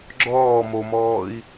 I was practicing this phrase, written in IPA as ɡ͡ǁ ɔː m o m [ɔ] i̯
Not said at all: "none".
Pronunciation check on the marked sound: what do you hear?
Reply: ɔː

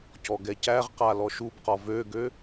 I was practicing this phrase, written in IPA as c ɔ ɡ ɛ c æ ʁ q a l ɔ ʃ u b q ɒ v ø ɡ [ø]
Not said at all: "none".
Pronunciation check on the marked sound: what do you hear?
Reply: ø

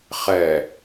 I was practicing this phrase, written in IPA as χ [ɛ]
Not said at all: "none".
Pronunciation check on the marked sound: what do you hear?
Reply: ɛ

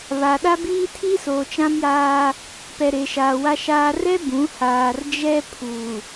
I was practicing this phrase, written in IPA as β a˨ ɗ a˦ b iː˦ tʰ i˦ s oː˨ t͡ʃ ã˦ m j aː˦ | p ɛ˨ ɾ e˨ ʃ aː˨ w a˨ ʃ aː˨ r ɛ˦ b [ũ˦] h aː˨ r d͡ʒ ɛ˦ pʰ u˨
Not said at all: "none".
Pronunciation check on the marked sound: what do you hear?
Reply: ũ˨˦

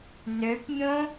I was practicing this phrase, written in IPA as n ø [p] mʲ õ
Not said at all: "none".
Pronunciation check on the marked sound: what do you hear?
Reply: p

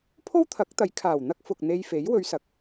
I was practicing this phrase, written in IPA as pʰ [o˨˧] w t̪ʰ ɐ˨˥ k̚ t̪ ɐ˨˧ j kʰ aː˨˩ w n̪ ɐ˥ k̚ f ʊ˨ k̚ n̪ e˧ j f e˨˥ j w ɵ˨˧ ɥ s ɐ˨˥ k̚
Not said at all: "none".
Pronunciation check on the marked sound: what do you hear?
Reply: o˥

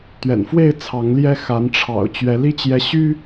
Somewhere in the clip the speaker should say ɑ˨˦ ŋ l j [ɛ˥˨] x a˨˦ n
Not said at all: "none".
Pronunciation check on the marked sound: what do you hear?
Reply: ɛ˦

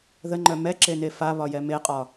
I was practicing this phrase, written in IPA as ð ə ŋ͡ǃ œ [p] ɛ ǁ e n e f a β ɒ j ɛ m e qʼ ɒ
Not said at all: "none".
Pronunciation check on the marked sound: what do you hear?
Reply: m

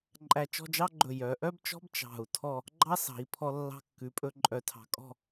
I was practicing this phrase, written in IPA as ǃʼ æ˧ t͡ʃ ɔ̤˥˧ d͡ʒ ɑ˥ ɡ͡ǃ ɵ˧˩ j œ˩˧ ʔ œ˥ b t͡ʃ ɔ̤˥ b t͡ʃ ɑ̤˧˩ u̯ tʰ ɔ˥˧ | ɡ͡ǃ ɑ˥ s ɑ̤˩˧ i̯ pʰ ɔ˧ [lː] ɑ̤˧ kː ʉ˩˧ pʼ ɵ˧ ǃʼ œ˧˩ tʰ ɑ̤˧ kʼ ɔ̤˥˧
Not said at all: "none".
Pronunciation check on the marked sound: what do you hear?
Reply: lː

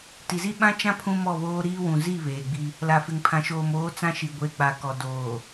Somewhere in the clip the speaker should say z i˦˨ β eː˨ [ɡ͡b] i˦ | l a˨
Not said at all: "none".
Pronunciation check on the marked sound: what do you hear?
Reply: ɡ͡b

